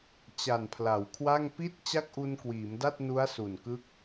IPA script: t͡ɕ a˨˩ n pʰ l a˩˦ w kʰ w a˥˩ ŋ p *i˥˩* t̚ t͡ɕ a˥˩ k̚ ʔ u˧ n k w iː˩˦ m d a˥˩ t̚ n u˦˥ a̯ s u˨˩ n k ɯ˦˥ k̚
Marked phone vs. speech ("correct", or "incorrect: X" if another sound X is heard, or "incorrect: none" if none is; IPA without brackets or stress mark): correct